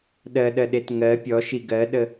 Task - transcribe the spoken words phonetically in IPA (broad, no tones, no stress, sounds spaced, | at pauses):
ɗ ɜ ɗ ɜ ɗ e t ŋ ɜ pʲ ɔ ʃ i ɡ ɜ ɗ ə